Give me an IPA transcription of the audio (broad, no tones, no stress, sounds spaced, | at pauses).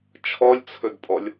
t͡ʃʰ ɔ lʲ t͡sʰ ɵ d pʼ ɔ lʲ